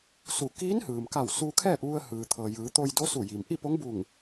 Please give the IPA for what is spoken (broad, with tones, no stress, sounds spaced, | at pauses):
s u˧˩ k iː˧˥ n h ɯː˩ m k a˧˩ w s uː˧ kʰ ɛː˥˨ p̚ ʋ u˧ ə̯ h ɯː˩ t̪ʰ ɤː˩ j ɯː˩˧ t̪ o˧ j d o˧˥ s u˧˩ j i˩ m ʔ i˥˨ p o˧˥ ŋ b u˧˩ ŋ